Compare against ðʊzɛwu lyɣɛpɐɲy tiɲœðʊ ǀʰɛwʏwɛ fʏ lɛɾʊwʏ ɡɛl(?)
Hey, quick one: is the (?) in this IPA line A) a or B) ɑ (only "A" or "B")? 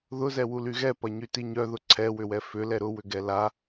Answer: A